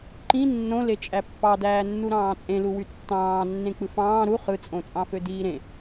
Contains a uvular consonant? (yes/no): yes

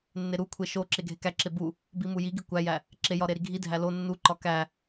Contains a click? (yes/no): yes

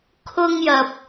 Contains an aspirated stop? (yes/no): yes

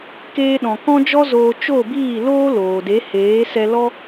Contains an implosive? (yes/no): yes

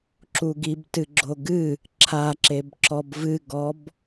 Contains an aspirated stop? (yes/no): yes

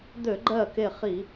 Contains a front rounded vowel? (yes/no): yes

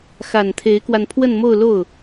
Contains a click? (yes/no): no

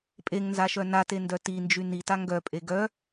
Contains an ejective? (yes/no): yes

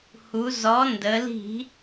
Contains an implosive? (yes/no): no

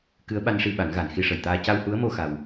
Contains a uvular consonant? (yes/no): no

